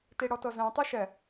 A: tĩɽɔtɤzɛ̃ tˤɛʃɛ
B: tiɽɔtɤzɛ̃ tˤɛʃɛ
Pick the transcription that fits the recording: B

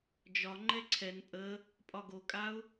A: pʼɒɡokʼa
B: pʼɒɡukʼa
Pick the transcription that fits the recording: A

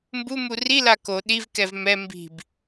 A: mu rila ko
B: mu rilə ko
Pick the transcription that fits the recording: A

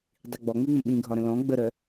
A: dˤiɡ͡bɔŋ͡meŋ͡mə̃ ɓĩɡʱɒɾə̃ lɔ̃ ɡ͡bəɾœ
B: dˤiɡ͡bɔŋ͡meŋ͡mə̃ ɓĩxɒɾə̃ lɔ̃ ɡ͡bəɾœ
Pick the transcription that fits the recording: A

